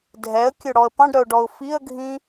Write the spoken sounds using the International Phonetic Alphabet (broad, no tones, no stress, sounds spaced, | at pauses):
dʱ ɛ ə̯ kʲ ɵ ɽ ɔ ə̯ p ɑ̃ ɖ ɾ œ ʊ̯ ɖ ɔ ʊ̯ f i ə̯ ɡʱ ĩ